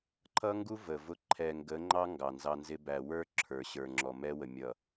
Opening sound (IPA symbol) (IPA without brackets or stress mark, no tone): ǃʰ